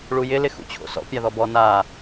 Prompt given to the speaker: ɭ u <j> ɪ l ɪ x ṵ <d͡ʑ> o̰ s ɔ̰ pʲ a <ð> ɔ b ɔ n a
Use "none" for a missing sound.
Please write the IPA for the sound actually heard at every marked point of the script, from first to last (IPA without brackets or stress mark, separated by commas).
j, t͡ɕʰ, ð